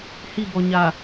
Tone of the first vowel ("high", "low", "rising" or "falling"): falling